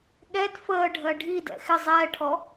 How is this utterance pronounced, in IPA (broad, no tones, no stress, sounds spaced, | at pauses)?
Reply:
ɠ ɛ d f əː ɖʱ ɜ ɖʱ i d ɛ̰ x ɪ zˤ ɛː ʈʰ ɔ